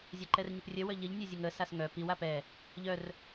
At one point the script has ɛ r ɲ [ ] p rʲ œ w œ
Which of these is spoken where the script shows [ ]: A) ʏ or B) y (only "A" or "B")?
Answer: A